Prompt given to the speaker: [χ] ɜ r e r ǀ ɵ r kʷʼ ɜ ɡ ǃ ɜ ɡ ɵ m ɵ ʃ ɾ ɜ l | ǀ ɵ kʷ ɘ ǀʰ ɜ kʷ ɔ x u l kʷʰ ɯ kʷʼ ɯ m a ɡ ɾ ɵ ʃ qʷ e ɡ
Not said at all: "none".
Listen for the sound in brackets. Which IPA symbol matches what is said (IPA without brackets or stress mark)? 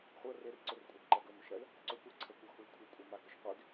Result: χʷ